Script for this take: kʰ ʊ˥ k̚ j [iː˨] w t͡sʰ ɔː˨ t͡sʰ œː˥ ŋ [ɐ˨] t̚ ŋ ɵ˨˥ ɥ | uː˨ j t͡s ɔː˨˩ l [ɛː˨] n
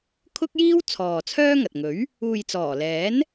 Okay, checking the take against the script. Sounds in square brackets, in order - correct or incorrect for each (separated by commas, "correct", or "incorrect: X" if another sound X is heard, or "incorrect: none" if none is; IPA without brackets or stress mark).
incorrect: iː˥, correct, incorrect: ɛː˨˥